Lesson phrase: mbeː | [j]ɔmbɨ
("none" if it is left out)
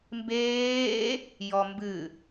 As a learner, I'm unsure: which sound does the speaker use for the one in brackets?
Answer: j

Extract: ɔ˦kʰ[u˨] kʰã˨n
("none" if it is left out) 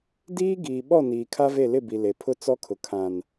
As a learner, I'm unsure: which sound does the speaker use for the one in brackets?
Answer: ʊ˨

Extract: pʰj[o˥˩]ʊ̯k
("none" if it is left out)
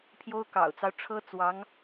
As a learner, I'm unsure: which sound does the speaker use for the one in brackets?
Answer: o˥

